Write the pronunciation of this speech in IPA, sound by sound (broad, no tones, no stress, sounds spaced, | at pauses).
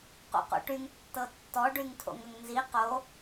q o̰ q o̰ ʈ y ŋ tː ɤ tː ɔ ɖ y ŋ tʰ o̰ ŋ ə ŋ n z i q o